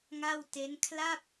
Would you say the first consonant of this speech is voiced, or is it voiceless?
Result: voiced